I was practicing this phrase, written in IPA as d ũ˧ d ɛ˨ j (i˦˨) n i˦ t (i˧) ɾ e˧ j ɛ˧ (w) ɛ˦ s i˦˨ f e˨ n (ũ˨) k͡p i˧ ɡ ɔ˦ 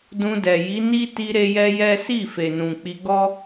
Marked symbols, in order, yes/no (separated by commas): no, yes, no, yes